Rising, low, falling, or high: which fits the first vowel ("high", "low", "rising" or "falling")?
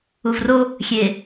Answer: low